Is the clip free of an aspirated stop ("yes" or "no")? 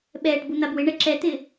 yes